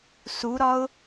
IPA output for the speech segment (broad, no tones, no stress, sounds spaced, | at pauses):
s u ɾ ɒ ʊ̯